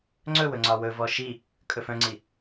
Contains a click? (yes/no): yes